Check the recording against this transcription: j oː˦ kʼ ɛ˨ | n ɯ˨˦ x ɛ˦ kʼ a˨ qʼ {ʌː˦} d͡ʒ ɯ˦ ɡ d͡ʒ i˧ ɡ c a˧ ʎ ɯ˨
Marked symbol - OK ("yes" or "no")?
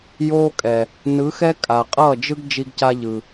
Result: no